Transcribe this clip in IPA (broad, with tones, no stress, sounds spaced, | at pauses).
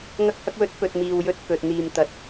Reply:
ŋ ɐ˧ k̚ h ɐ˧ k̚ w ɵ˨˥ t̚ p ɵ˨ t̚ m iː˨ w j ɵ˨˥ t̚ k ɵ˨ t̚ n̪ iː˨ m t̪ ɐ˨˥ t̚